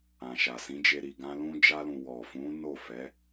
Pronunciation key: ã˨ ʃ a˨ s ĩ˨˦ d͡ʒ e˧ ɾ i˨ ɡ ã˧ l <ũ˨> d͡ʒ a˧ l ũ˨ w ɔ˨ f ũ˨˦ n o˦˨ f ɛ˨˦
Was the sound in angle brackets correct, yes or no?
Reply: no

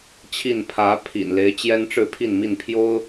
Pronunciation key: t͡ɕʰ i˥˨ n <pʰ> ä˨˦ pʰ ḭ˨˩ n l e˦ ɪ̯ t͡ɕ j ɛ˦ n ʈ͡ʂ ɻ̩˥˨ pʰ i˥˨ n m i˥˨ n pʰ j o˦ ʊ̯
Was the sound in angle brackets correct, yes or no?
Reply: yes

